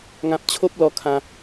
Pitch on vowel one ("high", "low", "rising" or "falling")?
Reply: high